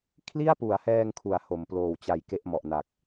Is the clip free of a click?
yes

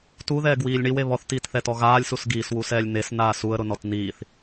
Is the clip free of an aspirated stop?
yes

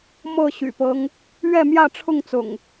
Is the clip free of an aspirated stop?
no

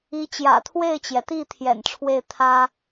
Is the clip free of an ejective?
yes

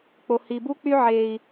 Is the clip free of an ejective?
yes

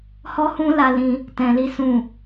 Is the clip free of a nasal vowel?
no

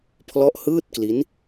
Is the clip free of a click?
yes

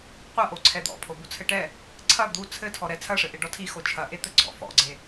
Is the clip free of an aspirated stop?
no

